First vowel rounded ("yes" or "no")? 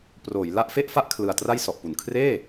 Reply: yes